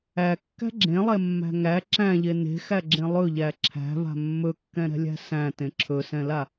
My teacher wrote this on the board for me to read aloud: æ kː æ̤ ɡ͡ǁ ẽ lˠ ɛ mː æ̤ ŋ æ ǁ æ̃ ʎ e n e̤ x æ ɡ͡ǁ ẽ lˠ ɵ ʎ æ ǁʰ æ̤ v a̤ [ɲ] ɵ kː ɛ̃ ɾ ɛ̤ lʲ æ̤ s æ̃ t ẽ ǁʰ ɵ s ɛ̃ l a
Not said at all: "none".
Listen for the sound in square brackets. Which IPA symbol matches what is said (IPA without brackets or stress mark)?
mː